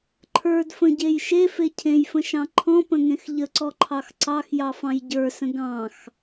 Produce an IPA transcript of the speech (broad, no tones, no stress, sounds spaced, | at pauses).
ǃʰ ə˞ d f ə̃ ɟ e j ʃ e f e cʰ ẽ j f ə̃ ʃ ɑ̃ ǃʰ ɔ̃ p ə̃ ŋ ẽ x ʎ ə ǀ ɔ ǃʰ ɑ x ǀ ɑ x j ɑ f ɑ̃ j ɟ ə˞ s ə̃ ɡ ɑ̃ x